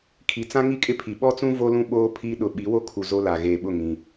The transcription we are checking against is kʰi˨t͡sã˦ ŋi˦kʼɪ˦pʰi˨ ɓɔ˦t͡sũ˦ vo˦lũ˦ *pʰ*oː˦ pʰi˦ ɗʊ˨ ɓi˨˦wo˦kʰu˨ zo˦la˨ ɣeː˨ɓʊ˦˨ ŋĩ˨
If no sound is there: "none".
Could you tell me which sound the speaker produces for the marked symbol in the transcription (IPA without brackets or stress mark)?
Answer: ɓ